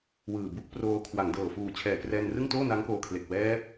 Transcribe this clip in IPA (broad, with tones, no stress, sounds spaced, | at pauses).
w ɯː˨˩ b u˦˥ k̚ p r oː˧ kʰ w a˩˦ ŋ d ɤː˨˩ f uː˨˩ t͡ɕʰ ɛː˨˩ k r ɛː˧ n r ɯ˥˩ ŋ t oː˥˩ n a˦˥ ŋ k oː˧ kʰ l e˨˩ k̚ w ɛː˦˥ p̚